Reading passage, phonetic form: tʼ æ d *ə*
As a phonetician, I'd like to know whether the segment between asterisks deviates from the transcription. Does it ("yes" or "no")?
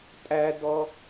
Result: yes